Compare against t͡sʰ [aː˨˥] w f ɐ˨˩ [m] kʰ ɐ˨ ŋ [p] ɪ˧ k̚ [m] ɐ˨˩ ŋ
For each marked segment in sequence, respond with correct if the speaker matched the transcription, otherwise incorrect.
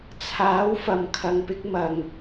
correct, correct, correct, correct

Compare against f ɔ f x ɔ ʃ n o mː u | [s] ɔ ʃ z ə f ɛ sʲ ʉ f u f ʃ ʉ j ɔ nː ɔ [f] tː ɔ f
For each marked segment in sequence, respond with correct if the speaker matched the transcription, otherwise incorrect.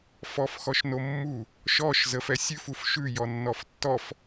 incorrect, correct

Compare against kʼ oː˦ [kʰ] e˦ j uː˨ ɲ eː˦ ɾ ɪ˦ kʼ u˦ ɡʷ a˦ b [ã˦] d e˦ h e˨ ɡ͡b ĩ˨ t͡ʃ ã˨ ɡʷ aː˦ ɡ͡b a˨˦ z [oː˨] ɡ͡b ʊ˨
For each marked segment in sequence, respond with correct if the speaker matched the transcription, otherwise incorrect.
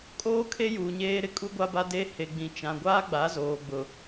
correct, incorrect, correct

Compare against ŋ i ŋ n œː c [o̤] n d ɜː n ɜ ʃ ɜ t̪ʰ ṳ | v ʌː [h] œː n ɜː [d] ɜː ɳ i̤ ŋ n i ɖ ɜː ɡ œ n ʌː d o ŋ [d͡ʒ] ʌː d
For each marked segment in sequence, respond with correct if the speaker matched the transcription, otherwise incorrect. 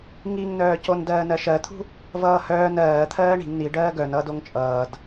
incorrect, correct, incorrect, incorrect

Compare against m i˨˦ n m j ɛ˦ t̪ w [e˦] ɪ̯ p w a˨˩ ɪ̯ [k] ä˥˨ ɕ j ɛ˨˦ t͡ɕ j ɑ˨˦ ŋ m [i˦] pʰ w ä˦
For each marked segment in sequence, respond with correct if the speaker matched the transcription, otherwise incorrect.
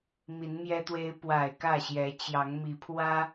correct, correct, incorrect

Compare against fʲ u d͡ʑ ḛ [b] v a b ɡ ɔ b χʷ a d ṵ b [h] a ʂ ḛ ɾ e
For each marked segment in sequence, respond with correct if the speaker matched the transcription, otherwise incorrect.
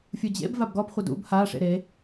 correct, correct

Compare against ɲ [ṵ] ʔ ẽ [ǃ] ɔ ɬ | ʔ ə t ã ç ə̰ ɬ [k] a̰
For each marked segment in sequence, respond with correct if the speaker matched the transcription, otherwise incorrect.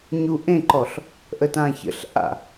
incorrect, correct, incorrect

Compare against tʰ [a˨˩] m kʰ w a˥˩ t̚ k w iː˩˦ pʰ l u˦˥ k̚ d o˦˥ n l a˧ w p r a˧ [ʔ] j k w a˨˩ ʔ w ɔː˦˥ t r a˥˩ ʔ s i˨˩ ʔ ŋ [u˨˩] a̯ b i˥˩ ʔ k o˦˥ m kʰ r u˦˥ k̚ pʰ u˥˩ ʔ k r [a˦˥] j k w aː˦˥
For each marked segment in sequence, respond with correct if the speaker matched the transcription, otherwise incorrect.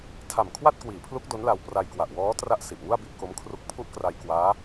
correct, incorrect, incorrect, incorrect

